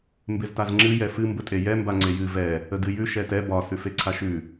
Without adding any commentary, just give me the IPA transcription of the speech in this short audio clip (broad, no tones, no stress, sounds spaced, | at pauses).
m b e z t a z ŋ͡ǁ ɨ j ɛ f ɨ m b ə tʼ e j ɛ m b a ŋ͡ǀ e j ɨ v ɛ | ə d ɨ j ʉ ʃ ɛ t ɛ b ɒ s ʉ f e ǀʰ a ʃ ʉ